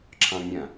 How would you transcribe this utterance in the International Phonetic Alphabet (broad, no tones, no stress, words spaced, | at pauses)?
ǁʰɑ̃ɳnʲã